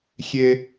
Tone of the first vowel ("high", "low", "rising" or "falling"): high